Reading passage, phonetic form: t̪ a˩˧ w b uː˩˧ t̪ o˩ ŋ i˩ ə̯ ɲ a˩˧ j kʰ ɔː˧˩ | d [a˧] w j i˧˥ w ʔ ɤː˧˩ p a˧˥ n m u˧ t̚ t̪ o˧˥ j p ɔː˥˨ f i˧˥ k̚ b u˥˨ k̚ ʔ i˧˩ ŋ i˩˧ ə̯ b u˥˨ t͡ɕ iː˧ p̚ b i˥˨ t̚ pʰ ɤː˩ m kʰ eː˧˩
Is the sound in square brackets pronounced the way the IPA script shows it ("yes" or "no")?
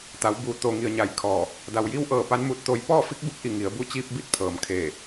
no